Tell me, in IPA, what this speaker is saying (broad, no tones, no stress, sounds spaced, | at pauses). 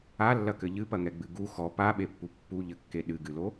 a lː ɐ k ɘ ʎ ɨ p ɐ ŋ ɛ ɡ͡b ɨ ɡ u x ɔ p a ɓ e pː u pː u ʎ ɘ kː e ɗ ɨ ɡ ɨ l o